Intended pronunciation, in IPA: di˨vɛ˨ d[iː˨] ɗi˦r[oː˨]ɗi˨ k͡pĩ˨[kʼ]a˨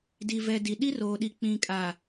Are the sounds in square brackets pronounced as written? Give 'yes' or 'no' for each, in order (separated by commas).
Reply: no, yes, yes